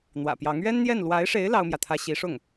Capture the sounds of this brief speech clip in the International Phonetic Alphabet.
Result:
n̪ w ä̰˨˩ p j ɑ˧˥ ŋ ɥ ɛ˥ n n̪ j ɛ˥˩ n l w a˧˥ ɪ̯ ʂ e˧˥ ɪ̯ l ɑ˥ ʊ̯ m j ä˨ t̪ʰ ä˥ ɕ i˧˥ ʂ ʊ˥˩ ŋ

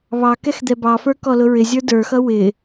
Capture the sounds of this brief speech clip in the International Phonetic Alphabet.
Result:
β ɑ k ɛ x d̪ ɛ b ɑ f ə˞ k ɔ l ʊ ɹ ɪ zʲ ə˞ d ə˞ x ʌ w ɪ

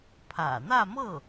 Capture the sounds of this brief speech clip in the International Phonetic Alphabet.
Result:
pʰ ä̰˨˩ n̪ ä˥˧ m ɤ˥˩

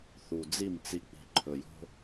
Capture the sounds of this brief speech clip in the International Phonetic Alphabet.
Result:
θ u˨ d͡z i˦˨ m t͡s i˨ k͡p i̤˨ ǃʰ ɵ˨ j o̤˦

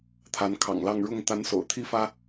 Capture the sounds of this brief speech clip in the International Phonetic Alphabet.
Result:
t̪ʰ a˧˥ n kʰ ɑ̰˨˩ ŋ l ɑ˥˧ ŋ ɻ ʊ˥˩ ŋ t̪ a˧˥ n s o̰˨˩ ʊ̯ t̪ʰ i˥ f ä˥

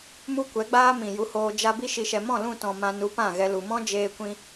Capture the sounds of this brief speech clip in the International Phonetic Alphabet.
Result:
m u˦ kʷ ɛ˨˦ ɡ͡b aː˦ m ĩ˨ j u˧ h oː˧ d͡ʒ a˦ b i˧ ʃ i˨ ʃ ɛ˨ m ɔ̃˦˨ l ũ˦˨ t ɔ̃˨ m ã˧ n u˨˦ p ã˦˨ ɣ ɛ˧ l u˨ m ɔ̃˦ d͡ʒ eː˧ kʷ ĩ˧

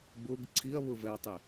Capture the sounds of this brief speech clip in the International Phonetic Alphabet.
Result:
b ʊ ɡ ǀʰ i ɐ̯ β ʊ v ɛ ɐ̯ tˤ e

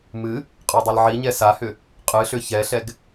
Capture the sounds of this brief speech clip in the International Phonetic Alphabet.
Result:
m ɨ | qʼ ə˞ dˤ i l ʕ i ɲ ɛ s a h ʏ | qʼ ɨ ɬ ʏ ç ɛ ɬ ɛ ɡ

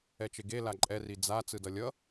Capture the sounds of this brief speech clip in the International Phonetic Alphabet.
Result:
ɛ t͡ʃ e ɡ e l a ǃʼ ɛ r i d͡z a t͡s ɯ d ʌ lʲ ʌ

